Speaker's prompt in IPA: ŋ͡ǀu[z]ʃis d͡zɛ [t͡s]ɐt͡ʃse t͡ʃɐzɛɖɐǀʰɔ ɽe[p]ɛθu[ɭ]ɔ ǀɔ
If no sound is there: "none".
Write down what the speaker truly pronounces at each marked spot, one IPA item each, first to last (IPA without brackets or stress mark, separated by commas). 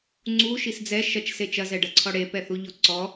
none, ʃ, p, ʎ